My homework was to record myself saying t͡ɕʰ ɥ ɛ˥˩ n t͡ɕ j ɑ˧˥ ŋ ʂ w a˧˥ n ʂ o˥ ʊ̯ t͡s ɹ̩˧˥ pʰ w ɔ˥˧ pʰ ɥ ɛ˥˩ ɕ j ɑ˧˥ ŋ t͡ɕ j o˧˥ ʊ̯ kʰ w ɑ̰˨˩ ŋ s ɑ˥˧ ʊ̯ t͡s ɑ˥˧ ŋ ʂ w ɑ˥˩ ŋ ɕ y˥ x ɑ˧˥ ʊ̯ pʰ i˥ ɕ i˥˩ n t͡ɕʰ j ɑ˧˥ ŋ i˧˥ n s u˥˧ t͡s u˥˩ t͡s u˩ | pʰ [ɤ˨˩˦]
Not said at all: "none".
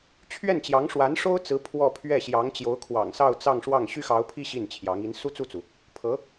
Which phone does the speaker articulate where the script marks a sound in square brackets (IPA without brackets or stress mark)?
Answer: ɤ˧˥